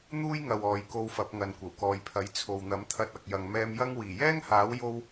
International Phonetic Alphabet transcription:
n̪ uː˥ j ŋ ɐ˨ w ɔː˨˧ j k o˧ w f ɐ˨˥ p̚ ŋ ɐ˨ n kʷ ɐ˨˩ w k ɔː˨ j pʰ ɐ˨˥ j t͡sʰ o˨ w n̪ ɐ˨˥ m t̪ʰ ɐ˧ t̚ ɐ˨ k̚ j ɐ˨ ŋ m ɛː˧ m j ɐ˥ ŋ w iː˨˩ j ɛː˥ ŋ h aː˨˥ w j o˥ w

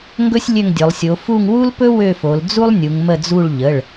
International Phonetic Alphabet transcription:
ŋ ɡ ɵ˥ sʲ lʲ ø˦˨ ŋ dʲ ɵ˩˧ lˠ sʲ o˩˧ f u˦˨ ŋ w u˥ l p ɵ˥ w ø˦˨ f o˩˧ l d͡z u˥ lˠ nʲ u˩˧ ŋ m ə˦˨ d͡z u˦˨ ɭ ʎ ə˩˧˩ ɭ

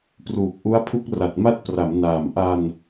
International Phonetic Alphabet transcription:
p r uː˨˩ k̚ ʔ u˦˥ a̯ pʰ u˦˥ k̚ r a˨˩ t̚ m a˥˩ t̚ p r a˩˦ m n aː˨˩ m ʔ a˧ n

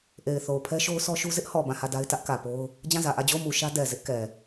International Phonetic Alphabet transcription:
ʔ e˨ ɪ̯ θ o˨ ʊ̯ pʰ ɛ˦ ʃ o˦ ʊ̯ sʰ ɔ˦ ʃ u˦ z ɪ˦ ʔ h ɔ˨ b ã˦˨ h ä˦˨ d a˦ ɪ̯ t ä˦ ʔ k ä˨ p o˦ ʊ̯ | d͡ʑ ã˦˨ z ä˨ ʔ ä˦˨ d͡ʑ o˦˨ ʊ̯ m u˨ ʃ ä˦ d ɛ˨ z ɪ˦ ʔ k ɛ˨

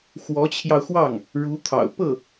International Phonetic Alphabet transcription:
x w ɔ˧˥ t͡ɕʰ j ɑ˧ ʊ̯ x w ɑ˥˩ ŋ | ɻ u˧˥ t̪ʰ ɑ̰˨˩ ʊ̯ p ɤ˥˩

